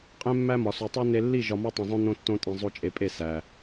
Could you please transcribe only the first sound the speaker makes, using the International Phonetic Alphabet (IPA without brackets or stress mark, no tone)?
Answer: qʼ